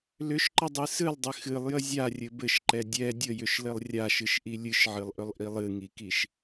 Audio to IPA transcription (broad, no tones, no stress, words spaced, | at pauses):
lʏʃǃədˤɨ sɨlˠdˤɘ xɨlˠjə zʲarʲɘ bɘʃǃɛ dʲɛ dʲəjʏʃlɘlˠ rʲaʃɨʃʔi lʲɨʃʕɨlˠʔʏlˠʔilˠ ɨŋikiʃ